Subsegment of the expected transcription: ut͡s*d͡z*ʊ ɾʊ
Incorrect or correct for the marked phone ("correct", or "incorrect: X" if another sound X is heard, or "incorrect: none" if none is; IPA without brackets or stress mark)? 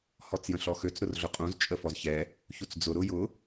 correct